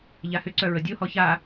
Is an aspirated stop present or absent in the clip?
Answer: absent